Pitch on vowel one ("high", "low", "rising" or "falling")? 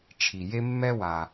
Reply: low